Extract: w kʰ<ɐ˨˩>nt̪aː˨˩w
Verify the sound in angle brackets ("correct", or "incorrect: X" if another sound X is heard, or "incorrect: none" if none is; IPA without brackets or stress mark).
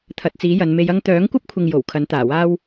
incorrect: ɐ˨˥